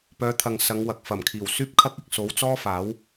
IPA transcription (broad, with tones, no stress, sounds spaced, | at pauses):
p œː˨˧ t̪ʰ ɐ˨ ŋ s ɐ˨˧ ŋ w ɐ˨ k̚ f ɐ˨˩ m kʰ iː˨˩ w s yː˥ p̚ kʰ ɐ˥ k̚ ɪ˨ k̚ s o˨˥ w t͡s ɔː˥ f aː˨˥ w